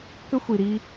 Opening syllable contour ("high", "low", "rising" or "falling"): high